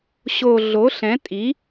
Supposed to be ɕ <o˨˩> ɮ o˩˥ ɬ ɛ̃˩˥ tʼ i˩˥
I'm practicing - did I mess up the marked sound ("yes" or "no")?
no